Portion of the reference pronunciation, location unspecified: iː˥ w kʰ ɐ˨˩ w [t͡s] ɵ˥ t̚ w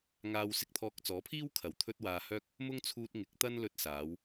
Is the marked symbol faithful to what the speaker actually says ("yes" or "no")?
no